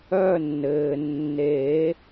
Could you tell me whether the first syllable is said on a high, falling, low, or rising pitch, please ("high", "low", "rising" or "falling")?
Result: falling